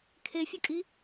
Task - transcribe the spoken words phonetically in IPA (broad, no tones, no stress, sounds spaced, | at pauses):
kʰ e fʲ ə kʼ i